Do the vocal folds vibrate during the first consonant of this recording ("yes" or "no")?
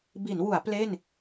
yes